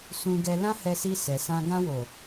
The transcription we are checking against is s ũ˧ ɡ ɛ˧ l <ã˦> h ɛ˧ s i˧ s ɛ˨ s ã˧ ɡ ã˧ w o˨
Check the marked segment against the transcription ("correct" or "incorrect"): correct